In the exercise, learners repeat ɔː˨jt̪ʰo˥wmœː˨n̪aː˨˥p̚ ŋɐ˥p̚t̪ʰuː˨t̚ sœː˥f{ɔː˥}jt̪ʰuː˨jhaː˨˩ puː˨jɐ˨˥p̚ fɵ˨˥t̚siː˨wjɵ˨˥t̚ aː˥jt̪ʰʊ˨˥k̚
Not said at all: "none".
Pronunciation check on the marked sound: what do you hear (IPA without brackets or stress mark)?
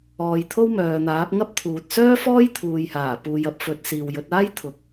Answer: ɔː˥